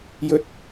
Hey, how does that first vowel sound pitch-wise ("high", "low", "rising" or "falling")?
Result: high